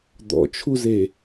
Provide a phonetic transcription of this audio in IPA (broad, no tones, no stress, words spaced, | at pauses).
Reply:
d̪ɔ̰t͡ʃʰuze